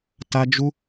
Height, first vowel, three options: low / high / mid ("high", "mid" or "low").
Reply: low